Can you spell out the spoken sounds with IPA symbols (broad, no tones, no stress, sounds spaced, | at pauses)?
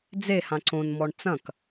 d͡z e h ã ǀ õ n m ɔ ɳ t͡s ɐ̃ k